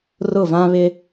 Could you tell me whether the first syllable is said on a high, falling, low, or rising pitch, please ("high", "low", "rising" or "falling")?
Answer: falling